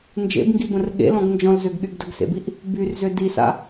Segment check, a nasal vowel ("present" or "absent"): present